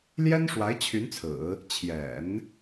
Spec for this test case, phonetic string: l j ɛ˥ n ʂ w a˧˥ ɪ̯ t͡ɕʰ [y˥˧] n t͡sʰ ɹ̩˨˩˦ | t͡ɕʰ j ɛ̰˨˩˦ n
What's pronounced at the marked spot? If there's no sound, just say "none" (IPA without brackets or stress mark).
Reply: y˧˥